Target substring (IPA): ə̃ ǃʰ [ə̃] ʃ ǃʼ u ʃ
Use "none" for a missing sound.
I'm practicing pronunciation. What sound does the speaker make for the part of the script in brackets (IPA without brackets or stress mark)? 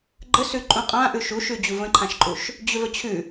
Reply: ã